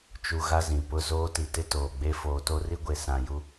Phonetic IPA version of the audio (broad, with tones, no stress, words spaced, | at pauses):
t͡ʃu˨ ɣa˦zĩ˨ pʊ˦˨zoː˦ti˨tɪ˦ toː˨ɡ͡be˦ foː˨to˦ri˦ɡʷe˨ sã˨ju˦